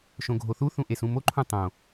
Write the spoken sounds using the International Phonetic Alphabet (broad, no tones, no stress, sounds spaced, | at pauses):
ʃ õ ɡʱ o θ u θ ũ ʔ e s ũ m o ǃʰ ũ tˤ õ